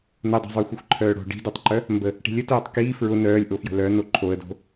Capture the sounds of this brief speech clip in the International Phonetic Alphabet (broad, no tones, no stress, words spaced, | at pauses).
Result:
nədˤo̤zˤœ xʷəxʷǃʰœːɽo̤ ɖi̤dœtˤǃœ | mbə | ʈi̤lʲə tœːtˤkiː fɹʊ nœːlʲʔo fjə̤lœ noǃʰoə̯do̤